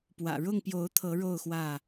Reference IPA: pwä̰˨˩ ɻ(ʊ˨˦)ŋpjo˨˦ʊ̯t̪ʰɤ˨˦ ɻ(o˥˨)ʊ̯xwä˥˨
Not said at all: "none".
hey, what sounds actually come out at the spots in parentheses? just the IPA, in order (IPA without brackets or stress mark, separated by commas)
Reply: ʊ˥˨, o˥˨